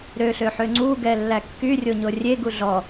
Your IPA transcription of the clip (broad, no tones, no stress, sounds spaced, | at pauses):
ɾ ø ɬ ø ħ ø ŋ͡ǀ u ɡ ɛ lː æ kː y rʲ o ɲ o rʲ e ɡ u ɮ ɔ